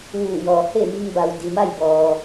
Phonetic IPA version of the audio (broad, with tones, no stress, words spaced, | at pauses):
ʋuː˧˩jɔː˩he˥˨mi˧ŋ ba˩wdi˩ma˥˨jbɔː˩